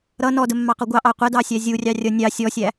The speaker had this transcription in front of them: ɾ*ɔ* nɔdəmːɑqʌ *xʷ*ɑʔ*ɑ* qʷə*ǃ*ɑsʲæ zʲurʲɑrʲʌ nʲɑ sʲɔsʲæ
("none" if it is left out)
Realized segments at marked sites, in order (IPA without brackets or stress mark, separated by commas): ʌ, ɡʷ, ɑ, d